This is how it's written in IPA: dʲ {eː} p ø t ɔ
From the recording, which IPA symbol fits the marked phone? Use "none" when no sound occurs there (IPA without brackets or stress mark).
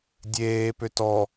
eː